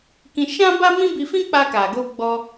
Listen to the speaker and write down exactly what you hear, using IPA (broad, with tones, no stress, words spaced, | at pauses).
kĩ˧ʃã˦ ba˦mĩ˦bi˧ fĩ˦k͡pa˧ka˨ɡo˧ ɡ͡bɔ˧